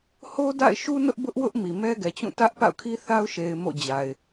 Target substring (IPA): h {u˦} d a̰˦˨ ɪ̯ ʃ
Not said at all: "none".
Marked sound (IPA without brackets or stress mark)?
o˦